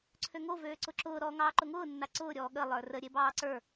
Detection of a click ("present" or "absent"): present